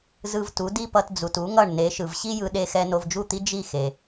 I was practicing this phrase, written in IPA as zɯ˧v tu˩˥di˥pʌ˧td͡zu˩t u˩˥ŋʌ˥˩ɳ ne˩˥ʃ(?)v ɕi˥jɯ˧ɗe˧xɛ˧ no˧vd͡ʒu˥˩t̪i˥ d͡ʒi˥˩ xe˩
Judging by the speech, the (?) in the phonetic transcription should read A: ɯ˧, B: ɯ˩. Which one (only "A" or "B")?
B